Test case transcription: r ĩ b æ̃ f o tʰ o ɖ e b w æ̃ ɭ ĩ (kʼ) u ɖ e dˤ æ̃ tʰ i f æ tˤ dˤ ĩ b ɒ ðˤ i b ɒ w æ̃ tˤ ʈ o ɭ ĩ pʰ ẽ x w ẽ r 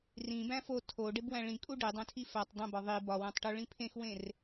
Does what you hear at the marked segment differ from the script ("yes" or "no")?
no